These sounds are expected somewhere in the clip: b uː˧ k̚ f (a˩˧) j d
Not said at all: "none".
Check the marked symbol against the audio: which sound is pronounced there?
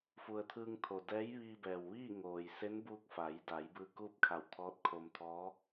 a˩˧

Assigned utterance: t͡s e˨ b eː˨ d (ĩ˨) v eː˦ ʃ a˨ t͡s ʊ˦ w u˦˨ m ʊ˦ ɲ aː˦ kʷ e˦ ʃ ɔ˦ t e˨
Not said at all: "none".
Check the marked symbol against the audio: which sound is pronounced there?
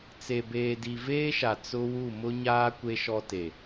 i˨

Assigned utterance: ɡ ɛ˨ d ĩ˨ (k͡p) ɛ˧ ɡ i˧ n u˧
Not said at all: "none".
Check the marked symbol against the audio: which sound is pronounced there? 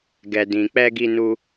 k͡p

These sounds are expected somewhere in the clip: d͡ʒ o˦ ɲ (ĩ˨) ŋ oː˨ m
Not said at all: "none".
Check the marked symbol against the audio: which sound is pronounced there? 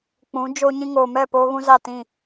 ĩ˦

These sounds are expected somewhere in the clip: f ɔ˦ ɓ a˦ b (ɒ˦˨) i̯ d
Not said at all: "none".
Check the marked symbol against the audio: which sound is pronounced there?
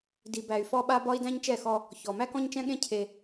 ɒ˦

